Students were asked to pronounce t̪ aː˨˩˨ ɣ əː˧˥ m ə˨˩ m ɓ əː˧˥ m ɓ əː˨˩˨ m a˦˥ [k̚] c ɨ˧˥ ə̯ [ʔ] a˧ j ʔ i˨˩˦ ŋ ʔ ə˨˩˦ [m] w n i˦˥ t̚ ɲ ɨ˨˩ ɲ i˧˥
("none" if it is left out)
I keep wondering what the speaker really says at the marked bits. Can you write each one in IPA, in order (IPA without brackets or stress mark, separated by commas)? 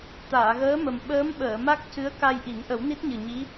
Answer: k̚, k, none